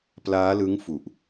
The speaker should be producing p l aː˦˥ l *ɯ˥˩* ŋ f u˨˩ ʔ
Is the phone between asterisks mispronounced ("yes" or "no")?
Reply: yes